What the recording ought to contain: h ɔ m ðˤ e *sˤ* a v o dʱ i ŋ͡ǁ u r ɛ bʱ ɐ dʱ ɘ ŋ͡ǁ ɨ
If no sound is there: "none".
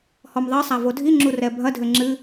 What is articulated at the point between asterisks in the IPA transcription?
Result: sˤ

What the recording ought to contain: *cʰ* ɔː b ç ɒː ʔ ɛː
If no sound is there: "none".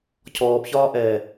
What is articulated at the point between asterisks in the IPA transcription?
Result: cʰ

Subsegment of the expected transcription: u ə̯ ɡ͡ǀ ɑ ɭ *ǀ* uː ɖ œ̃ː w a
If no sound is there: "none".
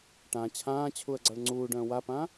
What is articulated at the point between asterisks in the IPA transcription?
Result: ŋ͡ǀ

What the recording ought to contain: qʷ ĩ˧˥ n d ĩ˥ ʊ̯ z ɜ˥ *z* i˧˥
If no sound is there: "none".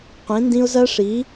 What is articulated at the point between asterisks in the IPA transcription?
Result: ʂ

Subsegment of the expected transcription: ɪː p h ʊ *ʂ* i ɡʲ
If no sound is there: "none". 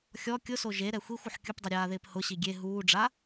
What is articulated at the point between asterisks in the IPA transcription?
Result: ɕ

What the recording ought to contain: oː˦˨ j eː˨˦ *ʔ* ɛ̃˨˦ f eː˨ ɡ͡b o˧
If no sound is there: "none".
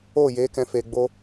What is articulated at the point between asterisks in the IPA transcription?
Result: k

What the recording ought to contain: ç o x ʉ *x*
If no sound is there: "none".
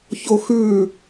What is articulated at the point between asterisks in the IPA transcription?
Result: none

